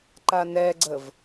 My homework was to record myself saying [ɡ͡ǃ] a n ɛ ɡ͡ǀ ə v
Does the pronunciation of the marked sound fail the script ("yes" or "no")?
yes